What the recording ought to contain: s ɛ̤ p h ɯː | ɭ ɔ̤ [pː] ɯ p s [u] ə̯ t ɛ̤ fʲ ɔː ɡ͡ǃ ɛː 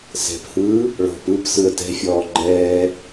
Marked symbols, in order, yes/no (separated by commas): no, no